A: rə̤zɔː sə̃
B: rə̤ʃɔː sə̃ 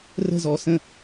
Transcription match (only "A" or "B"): A